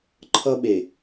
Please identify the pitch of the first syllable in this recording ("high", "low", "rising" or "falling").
high